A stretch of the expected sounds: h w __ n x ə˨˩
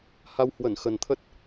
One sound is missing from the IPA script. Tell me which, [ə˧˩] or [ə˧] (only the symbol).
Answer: ə˧˩